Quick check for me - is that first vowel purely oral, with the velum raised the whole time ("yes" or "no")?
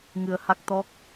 yes